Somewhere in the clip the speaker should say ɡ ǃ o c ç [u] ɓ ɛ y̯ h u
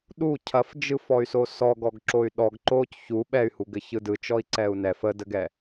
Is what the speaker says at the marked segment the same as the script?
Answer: yes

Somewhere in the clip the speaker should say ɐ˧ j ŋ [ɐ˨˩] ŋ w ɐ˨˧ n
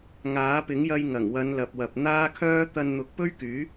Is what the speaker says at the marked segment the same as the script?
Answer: yes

